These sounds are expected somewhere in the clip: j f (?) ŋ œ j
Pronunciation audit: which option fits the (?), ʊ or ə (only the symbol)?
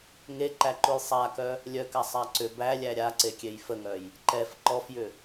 ə